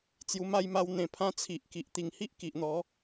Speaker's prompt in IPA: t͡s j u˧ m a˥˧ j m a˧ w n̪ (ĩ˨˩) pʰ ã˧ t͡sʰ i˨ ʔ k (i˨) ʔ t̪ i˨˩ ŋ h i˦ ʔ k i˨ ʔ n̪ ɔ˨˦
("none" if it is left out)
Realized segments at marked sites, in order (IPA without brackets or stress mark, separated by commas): ẽ˨˩, i˨